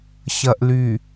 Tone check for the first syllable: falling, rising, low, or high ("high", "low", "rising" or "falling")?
low